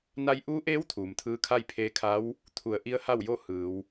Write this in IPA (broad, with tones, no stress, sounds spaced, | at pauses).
n a˧ j ʔ uː˧˥ ʔ eː˧˥ w t̪ʰ uː˩ m t̪ʰ ɯː˧˥ kʰ a˥˨ j pʰ eː˧ kʰ a˧˥ w | t̪ʰ u˩˧ ə̯ ʔ i˧˥ ə̯ h a˥˨ w j o˥˨ h ɯː˩˧ w